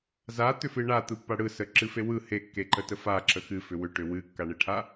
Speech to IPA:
z a t̪ ʏ f ɨ ɳ a t̪ ɯ pː a ɽ ɯ s ə ǁ ɨ f e w ɯ h e kː e ǃ ə t ə f a ǁ ə x ɨ f ʏ w ʏ ʈ ʏ w ɨ kː a ɳ e ʈʰ a

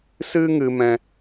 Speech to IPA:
s ɨ˦ ŋ ɨ˧ m ɛ̃˧

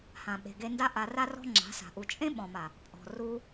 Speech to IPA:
h ã˨ ɓ e̤˨ ɡ e˧ n d a˦ ʔ a˧ r a˦ r ɔ̤˦ ŋ͡ǁ a̤˨˦ s a̤˨ ʔ u˨ t͡ʃʼ ẽ˦ ɓ ɔ̃˨ m a˨ | pʼ ɔ̤˨ r u˧

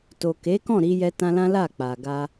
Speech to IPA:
t o˨ k e˨˦ k ɔ̃˦˨ ɾ i˧ j ɛ˧ t ã˧ l ã˦ l a˦˨ k͡p a˨ ɡ a˧

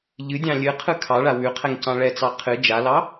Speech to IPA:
ʎ ɨ dʲ ɑ̃ lʲ ɨ qʰ ɯ kʰ ɑ ɭ a w ʉ qʰ ɛ ŋ c ɑ̃ ɭ ɛ t͡s ɑ qʰ ɨ d͡ʒ a l ɑ

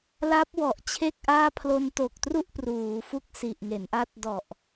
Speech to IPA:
l a˦˥ p̚ w ɔ˨˩ ʔ t͡ɕʰ e˥˩ k̚ ʔ aː˥˩ pʰ l o˧ n t o˨˩ k̚ t r u˥˩ ʔ p r uː˩˦ f u˥˩ k̚ s i˨˩ ʔ ŋ e˩˦ n ʔ a˦˥ t̚ d ɔ˨˩ ʔ

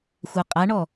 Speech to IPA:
xʷ a qʼ a ɳ ɔ

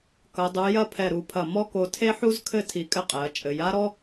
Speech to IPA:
k ɐ˩˧ dˤ u˩˧ j ɐ˥˧ pʰ ɛ˧˩ ɾ u˩˧ pʰ ɐ˧˩ m ɔ˥ k o˧ tʰ e˥ ħ u˥ z kʰ ɘ˥˧ tʰ i˧˩ kʼ ɘ˥˧ qʼ ɛ˩˧ ɐ̯ t͡ʃʼ ɘ˩˧ j a˥ ɾ ɔ˥

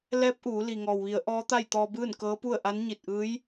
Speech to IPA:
l ɛː˧˥ p̚ ʔ uː˩˧ l i˩ ŋ ɔː˩ w ʋ i˩˧ ə̯ ʔ ɔː˧˥ t̪ a˥˨ j t̪ ɔː˧ b ɯː˥˨ n k ɤː˧˥ p u˥˨ ə̯ ʔ a˧˥ n ɲ i˧˩ t̚ ʔ ɯː˧˥ j

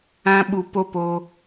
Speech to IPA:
ã˧ ɓ u˨ p o˦ p o˧

